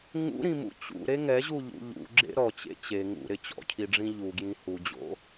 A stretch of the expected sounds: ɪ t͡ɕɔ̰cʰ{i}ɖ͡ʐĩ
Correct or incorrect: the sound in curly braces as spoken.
correct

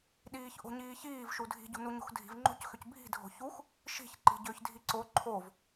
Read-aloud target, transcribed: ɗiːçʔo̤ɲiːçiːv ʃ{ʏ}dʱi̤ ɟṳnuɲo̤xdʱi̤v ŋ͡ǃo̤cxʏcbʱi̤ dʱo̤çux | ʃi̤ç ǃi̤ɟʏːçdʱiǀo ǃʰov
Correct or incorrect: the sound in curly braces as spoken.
incorrect: u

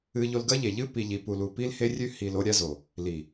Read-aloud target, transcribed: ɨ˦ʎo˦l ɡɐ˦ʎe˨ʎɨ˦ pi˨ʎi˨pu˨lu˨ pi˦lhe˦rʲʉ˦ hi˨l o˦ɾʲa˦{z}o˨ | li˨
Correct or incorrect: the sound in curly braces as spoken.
correct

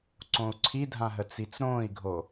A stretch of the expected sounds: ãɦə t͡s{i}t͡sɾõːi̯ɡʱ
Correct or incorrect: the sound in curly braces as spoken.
correct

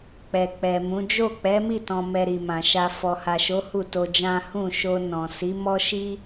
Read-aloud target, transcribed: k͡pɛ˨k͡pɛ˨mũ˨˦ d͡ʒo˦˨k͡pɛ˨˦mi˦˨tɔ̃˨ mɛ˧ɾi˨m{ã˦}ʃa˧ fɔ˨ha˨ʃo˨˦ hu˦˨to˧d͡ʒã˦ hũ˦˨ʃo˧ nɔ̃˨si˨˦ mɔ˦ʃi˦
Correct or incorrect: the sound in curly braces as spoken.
incorrect: ã˨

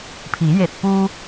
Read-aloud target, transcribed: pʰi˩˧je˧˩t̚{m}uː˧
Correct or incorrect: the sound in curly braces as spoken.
incorrect: p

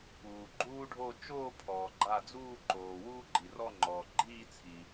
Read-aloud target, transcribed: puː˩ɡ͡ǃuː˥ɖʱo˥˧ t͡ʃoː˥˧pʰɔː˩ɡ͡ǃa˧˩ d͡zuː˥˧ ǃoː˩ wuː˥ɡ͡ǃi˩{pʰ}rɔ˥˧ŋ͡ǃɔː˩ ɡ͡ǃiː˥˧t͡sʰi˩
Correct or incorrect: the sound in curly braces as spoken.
incorrect: none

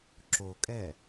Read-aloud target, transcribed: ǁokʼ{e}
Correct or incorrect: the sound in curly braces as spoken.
incorrect: ɛ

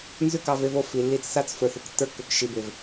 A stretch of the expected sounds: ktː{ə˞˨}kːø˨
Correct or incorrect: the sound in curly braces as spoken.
incorrect: ə˞˧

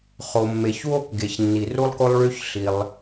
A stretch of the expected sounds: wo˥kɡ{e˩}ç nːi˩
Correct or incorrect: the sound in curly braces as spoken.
correct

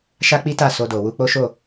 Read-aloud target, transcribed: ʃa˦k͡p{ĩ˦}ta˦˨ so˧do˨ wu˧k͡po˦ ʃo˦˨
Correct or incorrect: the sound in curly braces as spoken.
incorrect: i˦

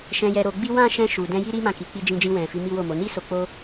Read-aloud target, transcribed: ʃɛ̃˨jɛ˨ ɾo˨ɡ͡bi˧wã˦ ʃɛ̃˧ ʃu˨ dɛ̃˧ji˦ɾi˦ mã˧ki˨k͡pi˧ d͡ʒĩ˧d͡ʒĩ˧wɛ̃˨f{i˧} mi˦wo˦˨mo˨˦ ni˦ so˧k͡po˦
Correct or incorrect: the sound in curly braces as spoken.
incorrect: i˨˦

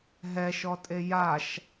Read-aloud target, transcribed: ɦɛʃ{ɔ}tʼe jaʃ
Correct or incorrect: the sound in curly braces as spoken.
correct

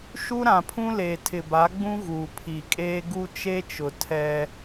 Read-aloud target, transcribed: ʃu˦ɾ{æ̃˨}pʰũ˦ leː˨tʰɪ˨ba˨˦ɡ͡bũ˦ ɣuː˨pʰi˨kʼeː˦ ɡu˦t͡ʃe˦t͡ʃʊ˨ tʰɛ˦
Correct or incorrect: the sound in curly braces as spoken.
incorrect: ã˨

